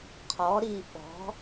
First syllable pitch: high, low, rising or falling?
rising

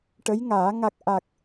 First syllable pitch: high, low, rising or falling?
rising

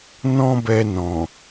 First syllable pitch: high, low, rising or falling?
high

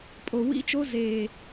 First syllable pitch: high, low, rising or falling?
low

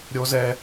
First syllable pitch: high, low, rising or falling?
high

